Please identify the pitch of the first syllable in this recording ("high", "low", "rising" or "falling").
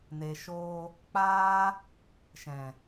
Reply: low